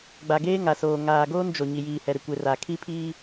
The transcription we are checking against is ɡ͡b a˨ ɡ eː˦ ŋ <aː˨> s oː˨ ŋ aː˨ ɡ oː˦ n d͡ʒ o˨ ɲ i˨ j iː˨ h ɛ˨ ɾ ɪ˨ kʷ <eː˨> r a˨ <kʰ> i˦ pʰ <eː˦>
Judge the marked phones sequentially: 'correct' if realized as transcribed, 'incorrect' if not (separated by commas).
incorrect, incorrect, correct, incorrect